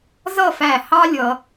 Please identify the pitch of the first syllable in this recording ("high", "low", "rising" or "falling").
falling